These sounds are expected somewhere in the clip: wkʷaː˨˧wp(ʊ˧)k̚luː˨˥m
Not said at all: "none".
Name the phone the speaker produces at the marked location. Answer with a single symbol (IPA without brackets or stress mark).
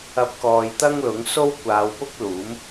ʊ˥